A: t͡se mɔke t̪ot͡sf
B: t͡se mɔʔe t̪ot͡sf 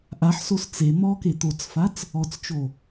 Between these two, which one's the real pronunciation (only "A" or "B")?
A